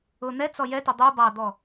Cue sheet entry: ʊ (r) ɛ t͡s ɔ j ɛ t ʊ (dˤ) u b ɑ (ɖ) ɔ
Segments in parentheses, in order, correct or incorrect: incorrect, correct, incorrect

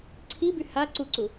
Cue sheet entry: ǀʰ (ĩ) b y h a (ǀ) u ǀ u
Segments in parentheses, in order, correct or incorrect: incorrect, correct

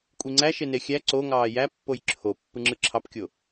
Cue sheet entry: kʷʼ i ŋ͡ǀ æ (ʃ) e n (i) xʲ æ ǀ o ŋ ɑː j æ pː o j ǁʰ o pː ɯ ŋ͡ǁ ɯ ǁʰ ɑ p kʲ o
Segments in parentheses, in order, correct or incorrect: correct, incorrect

